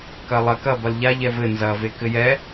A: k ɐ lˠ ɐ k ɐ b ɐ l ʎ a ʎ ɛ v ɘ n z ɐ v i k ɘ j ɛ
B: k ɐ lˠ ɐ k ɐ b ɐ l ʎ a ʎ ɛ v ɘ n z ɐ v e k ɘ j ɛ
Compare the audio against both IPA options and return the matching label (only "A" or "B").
B